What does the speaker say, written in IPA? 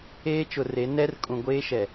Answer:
eː˦ t͡ʃ ʊ˨ r e˨˦ n ɛ˦ r kʼ ũ˨ ɡʷ eː˦ ʃ ɛ˨

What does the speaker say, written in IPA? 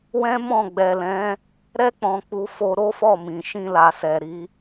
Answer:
w ɛ̃˦ m ɔ̃˦˨ ɡ͡b ɛ˨ l ɛ̃˨˦ | ɾ ɛ˧ k͡p ɔ̃˨ k͡p u˨˦ f o˧ ɾ o˦ f ɔ˦˨ m ĩ˨ ʃ ĩ˧ l a˨ s ɛ˨ ɾ i˨˦

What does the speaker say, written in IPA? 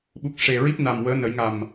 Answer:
ɓ u˨˩ k̚ ʂ e˨˩ ɹ i˦˥ p̚ n a˨˩ m w əː˧˥ n ə˨˩˦ j ŋ a˨˩ m

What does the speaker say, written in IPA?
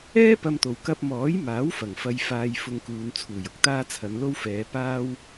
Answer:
ɛː˥ p ɐ˧ m t̪ o˨ w k ɐ˧ p̚ m ɔː˨˥ j m aː˨˥ w f ɐ˨˩ ŋ f ɐ˧ j f aː˧ j f ʊ˧ ŋ k uː˨˧ n t͡sʰ uː˨˩ j ʊ˨˥ k̚ t̪ aː˥ t͡sʰ ɐ˨˧ n l o˥ w f ɛː˨˧ p aː˥ w

